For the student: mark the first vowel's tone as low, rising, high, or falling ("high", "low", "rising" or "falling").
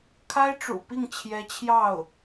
high